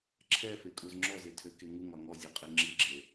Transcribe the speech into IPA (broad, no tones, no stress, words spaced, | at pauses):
ǁʰɛfekʼuz ŋ͡ǁɔzetʰøke ŋuŋɒ ŋɔzʲeqʼe ŋ͡ǁiɡ͡ǁe